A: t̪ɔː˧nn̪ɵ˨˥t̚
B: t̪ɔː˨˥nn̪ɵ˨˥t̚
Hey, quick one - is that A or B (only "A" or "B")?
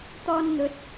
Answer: A